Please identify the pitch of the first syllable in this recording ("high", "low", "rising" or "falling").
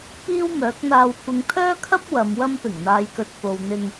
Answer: high